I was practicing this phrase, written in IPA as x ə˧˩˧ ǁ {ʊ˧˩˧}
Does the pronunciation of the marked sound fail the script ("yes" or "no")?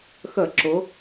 yes